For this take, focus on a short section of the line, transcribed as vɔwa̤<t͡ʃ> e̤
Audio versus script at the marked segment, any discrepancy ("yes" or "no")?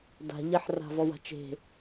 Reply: no